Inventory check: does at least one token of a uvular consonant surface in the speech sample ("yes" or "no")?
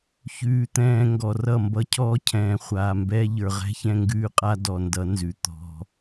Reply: yes